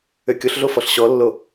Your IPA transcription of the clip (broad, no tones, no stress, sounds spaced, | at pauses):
ø kʲ o ɬ ɮ o f ɔ ɬ ɕ ɔ lː o